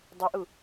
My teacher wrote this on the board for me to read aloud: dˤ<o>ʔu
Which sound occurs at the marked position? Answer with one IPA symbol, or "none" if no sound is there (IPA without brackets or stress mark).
o